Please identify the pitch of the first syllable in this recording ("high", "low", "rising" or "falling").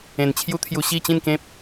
low